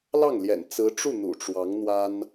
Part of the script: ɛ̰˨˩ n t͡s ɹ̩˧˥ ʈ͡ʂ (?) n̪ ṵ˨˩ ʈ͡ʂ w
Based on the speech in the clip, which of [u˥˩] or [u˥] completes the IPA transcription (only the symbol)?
u˥˩